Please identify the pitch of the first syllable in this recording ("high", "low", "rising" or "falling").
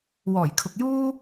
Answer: low